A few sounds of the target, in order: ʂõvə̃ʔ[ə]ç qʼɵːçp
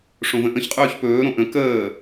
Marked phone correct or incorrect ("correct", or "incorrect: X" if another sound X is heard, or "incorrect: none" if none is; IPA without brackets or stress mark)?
incorrect: ə̃